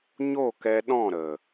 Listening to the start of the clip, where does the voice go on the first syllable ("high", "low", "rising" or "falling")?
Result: falling